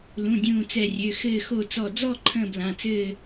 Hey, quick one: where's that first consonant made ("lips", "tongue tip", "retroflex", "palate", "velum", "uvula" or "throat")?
tongue tip